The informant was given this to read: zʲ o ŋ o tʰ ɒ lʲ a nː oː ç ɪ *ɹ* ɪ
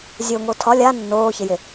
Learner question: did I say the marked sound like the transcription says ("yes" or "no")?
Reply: no